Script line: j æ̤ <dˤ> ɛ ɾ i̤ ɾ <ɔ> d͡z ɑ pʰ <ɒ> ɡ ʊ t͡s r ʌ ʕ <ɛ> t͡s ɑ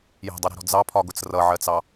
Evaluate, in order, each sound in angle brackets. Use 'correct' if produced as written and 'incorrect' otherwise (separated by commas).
correct, incorrect, correct, incorrect